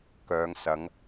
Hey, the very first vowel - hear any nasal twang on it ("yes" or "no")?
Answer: no